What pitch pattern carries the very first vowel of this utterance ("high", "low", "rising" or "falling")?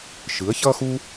rising